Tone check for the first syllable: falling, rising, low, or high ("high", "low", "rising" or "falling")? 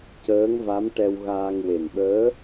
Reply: rising